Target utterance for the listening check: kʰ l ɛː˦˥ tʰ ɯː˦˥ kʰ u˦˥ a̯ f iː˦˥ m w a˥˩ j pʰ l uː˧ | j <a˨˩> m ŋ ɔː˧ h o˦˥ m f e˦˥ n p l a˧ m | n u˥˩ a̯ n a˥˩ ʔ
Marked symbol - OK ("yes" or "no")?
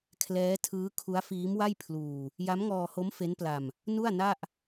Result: no